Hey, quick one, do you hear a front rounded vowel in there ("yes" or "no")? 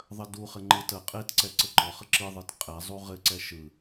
no